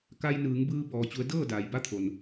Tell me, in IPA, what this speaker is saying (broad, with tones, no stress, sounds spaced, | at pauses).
k a˧ j n ɯː˩˧ ŋ b ɯː˧ b ɔː˧ t͡ɕ u˧˥ ə̯ d ɤː˥˨ d aː˩ j b a˧˥ t̪ʰ o˩ n